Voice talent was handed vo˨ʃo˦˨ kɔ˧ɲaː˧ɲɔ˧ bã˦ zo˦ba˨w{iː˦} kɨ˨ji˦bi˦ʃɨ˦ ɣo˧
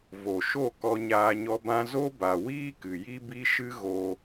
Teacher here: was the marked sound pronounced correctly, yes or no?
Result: yes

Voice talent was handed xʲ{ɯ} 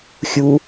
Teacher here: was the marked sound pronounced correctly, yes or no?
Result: no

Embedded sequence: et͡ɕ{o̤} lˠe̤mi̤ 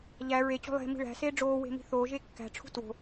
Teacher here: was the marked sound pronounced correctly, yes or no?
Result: yes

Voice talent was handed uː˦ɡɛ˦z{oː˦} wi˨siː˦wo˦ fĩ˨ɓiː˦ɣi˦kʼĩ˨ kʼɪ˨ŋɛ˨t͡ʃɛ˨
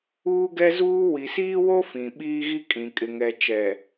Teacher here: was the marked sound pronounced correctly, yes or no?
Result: no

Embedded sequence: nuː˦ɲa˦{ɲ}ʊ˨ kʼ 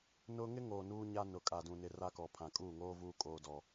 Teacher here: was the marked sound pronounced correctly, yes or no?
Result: no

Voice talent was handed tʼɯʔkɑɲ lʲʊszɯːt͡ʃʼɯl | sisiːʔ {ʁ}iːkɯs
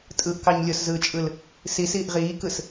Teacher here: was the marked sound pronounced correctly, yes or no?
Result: yes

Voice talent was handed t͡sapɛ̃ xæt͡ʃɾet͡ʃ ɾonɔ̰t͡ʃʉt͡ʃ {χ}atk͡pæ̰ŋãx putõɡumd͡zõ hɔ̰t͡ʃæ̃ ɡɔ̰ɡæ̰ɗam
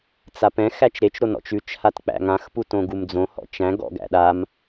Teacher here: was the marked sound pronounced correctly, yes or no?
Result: no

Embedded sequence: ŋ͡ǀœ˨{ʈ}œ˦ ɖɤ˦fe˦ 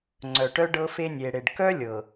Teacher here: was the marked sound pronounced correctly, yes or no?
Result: yes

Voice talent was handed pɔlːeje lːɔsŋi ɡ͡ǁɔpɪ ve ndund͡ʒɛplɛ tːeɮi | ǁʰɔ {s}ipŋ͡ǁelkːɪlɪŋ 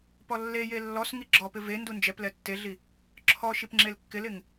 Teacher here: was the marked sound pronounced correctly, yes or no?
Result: no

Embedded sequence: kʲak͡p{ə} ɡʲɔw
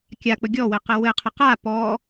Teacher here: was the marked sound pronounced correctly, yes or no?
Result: yes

